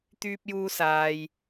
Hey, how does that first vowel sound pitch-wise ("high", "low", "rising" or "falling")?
high